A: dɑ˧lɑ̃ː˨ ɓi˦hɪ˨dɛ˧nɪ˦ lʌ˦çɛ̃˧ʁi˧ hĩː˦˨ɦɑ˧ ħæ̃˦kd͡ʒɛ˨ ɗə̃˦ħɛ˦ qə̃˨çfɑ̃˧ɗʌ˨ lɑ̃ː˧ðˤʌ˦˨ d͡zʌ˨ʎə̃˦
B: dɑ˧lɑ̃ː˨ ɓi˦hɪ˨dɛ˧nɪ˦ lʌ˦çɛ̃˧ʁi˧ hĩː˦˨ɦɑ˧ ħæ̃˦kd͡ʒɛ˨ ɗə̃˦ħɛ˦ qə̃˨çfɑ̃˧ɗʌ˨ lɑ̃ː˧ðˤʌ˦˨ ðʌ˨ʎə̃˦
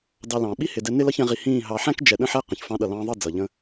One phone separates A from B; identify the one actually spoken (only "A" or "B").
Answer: A